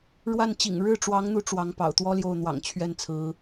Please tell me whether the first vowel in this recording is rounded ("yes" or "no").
no